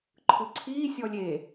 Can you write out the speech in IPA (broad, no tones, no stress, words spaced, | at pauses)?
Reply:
ǃʰɯǀʰiː sʲɔlʲe